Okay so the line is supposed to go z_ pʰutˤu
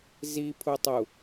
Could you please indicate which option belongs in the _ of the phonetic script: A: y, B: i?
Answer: B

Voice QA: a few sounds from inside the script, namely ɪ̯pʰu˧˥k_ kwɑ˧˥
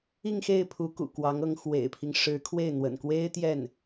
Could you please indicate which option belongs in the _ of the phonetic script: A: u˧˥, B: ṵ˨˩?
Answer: B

